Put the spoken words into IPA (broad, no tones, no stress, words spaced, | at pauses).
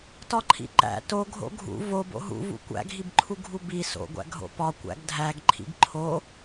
tɒǃʰḭǃæ̰ to ɡʱo̰ɡʱṵ vob o̰ɦṵvṵ kʷæ̰ɡʱibǃʰu ɡʱubi so̰ɡʷæ̰ ɡʱo̰pɒ kʷæ̰ɡdʱæɡ ǃʰḭɡǃʰo